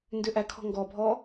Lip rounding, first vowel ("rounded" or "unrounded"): rounded